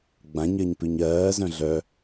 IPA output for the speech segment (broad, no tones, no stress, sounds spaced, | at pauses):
ɡ͡b ã ɲ ɜ ɲ p ʉ ɲ ɜː z œ̃ ɮ œ